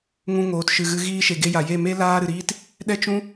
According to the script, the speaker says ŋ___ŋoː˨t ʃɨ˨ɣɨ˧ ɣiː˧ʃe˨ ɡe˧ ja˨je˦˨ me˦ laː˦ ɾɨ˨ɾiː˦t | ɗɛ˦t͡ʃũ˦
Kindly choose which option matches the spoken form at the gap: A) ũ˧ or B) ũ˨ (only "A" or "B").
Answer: A